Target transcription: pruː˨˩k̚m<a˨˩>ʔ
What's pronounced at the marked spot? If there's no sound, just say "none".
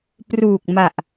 a˨˩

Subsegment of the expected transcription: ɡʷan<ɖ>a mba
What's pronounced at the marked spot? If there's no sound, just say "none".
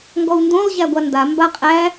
d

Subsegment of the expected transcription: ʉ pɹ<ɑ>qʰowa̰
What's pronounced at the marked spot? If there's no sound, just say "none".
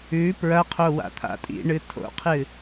ɐ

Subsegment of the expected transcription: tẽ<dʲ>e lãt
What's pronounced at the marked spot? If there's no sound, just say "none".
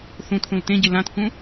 ɟ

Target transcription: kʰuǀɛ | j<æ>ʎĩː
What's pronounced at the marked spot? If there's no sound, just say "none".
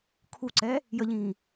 ə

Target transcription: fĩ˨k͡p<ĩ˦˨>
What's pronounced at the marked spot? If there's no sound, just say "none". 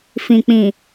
ĩ˨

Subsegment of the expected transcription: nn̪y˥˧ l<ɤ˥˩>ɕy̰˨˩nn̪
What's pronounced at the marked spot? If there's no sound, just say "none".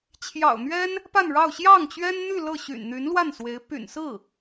ɤ˥˩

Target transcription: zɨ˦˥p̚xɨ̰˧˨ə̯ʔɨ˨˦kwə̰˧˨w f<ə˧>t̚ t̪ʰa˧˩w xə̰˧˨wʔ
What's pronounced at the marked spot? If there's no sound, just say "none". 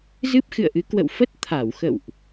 ə˦˥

